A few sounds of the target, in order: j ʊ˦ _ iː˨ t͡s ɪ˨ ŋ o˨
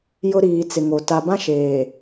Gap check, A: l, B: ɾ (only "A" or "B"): B